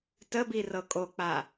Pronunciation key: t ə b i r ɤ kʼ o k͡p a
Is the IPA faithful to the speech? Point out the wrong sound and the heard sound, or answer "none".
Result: none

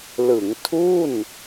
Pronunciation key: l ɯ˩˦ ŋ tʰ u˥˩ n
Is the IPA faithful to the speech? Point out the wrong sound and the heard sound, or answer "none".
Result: none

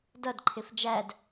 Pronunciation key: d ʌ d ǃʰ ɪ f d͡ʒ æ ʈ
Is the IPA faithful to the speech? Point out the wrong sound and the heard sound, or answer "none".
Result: ʈ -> d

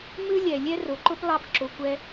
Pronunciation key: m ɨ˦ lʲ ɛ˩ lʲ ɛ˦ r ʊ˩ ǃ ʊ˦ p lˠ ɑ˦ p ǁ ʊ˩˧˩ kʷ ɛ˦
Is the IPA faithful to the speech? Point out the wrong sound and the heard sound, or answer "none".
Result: none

